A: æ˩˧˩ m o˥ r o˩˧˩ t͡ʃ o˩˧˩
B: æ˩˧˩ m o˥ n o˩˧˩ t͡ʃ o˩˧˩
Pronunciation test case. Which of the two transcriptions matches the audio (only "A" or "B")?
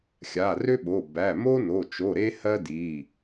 B